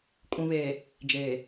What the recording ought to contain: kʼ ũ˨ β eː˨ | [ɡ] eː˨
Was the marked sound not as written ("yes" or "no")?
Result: yes